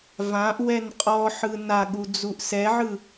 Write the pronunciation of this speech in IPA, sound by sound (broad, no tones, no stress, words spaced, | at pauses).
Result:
vãʔ wɛnqʼɔħɯ naɠu d͡zuʔsɛʕɯ